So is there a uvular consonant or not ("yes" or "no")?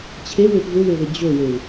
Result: no